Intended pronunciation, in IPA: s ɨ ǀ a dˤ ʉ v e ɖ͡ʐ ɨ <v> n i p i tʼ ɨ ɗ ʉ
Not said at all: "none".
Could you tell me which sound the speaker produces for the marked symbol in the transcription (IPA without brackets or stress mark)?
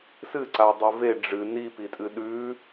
none